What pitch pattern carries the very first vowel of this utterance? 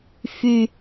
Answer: high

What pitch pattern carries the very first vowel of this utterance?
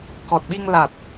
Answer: low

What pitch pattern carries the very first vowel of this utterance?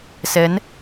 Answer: rising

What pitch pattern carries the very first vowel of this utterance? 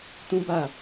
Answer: high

